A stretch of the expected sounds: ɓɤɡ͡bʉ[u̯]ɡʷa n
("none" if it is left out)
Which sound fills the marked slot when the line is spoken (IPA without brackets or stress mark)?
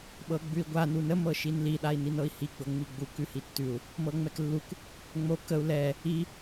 i̯